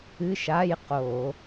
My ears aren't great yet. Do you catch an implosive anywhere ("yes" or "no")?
no